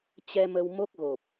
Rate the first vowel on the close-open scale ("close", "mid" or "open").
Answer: mid